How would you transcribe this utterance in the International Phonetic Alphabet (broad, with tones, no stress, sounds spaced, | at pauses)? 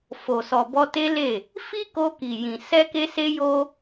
f o˨ s ɔ˨ b ɔ˧ t e˦ l e˦˨ | f i˦ k o˧ k i˨ j ĩ˨ s ɛ˧ k e˧ s e˧ j o˧